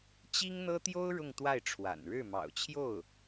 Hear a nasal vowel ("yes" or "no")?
no